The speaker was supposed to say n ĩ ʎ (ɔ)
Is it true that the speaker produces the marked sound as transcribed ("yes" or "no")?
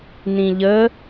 no